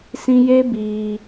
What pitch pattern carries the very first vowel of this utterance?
high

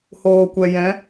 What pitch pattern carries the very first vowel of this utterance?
low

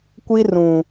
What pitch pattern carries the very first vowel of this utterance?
high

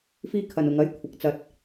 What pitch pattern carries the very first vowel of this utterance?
high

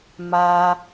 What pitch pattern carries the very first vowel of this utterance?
high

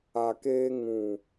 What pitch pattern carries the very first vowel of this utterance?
low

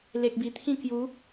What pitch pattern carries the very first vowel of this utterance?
low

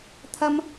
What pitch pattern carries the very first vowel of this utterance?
high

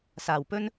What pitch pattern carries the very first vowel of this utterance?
low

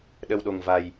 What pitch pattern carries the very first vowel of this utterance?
low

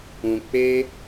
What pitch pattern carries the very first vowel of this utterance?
low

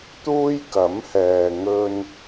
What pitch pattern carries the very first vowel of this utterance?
high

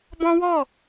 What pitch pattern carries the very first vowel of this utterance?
high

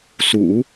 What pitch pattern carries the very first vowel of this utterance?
low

